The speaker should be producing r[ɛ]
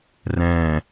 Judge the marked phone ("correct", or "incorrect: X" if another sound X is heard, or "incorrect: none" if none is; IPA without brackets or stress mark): incorrect: ɛ̃